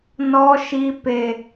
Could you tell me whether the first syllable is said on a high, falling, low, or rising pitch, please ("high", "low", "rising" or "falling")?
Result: high